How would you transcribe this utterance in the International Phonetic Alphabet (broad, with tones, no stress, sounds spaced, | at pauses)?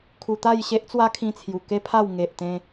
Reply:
kʰ u˧ t̪ a˥˧ j ɕ e˦ ʔ t͡s w a˦ kʰ ĩ˧ t͡sʰ j u˨˩ k e˦ pʰ a˥˧ w ŋ e˨ ʔ t̪ ẽ˧